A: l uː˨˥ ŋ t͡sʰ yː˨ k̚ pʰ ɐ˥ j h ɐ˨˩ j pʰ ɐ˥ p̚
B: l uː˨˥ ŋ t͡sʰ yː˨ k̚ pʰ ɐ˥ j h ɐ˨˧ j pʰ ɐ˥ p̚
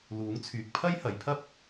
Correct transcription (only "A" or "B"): B